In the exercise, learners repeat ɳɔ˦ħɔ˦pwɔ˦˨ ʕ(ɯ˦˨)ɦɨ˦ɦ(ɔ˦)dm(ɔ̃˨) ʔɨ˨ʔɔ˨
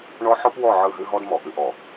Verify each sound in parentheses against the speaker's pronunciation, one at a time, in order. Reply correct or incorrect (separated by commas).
correct, correct, incorrect